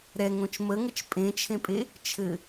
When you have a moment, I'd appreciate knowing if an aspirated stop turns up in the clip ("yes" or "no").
yes